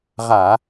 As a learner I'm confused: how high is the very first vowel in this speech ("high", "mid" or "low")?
low